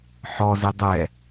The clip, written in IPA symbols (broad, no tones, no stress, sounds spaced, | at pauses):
ħ ɔ z e dˤ ɛ